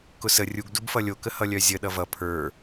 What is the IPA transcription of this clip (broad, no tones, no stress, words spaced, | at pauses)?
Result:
kʊsə rʲuɡ dubfʌlʲo kəhʌlʲœzʲə ɗʌvʌ pʰə˞